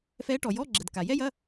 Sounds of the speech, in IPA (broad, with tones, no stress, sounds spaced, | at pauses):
f ɛ˧˥ ʈ ɔ˩ j ɔ˧˥˧ ɡ͡ǁ ə˩ d k a˩ j ɛ˥ j ɐ˧˥˧